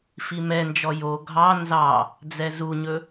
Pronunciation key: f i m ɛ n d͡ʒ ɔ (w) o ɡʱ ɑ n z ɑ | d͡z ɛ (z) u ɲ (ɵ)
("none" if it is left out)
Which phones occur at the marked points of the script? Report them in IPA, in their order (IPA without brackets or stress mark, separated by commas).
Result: j, z, ɵ